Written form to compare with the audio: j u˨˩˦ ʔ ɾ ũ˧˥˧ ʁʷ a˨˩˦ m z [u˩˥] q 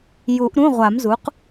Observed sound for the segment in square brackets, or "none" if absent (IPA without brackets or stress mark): u˩˥